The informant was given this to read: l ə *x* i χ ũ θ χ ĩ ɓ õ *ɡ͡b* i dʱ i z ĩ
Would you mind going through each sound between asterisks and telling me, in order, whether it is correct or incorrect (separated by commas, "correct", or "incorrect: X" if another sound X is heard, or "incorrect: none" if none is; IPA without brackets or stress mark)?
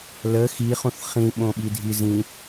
correct, incorrect: ɓ